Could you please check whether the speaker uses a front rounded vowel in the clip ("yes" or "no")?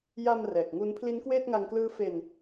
no